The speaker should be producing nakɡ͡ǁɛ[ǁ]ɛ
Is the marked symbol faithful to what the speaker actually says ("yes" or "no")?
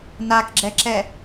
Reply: yes